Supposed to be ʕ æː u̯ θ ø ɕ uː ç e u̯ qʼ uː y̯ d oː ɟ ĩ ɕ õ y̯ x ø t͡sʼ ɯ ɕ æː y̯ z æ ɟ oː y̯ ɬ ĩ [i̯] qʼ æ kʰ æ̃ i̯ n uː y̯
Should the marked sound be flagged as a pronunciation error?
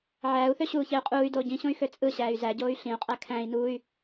yes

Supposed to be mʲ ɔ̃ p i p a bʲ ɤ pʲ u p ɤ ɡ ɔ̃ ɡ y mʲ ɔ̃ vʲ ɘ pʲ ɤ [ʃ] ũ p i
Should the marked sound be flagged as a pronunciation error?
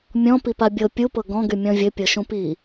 no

